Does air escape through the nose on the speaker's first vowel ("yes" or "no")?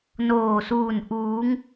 no